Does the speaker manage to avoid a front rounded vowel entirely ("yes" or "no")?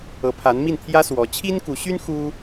no